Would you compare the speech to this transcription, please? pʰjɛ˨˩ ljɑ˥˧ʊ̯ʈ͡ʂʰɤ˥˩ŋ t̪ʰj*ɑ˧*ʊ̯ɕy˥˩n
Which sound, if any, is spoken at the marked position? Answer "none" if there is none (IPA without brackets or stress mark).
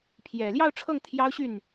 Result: ɑ˥